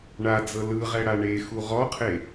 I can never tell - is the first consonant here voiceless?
no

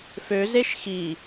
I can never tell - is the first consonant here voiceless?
yes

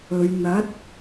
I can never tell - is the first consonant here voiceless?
no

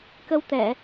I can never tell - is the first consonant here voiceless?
yes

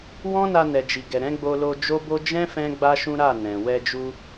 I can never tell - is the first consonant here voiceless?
no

